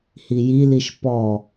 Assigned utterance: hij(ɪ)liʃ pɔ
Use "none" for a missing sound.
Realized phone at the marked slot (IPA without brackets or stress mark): i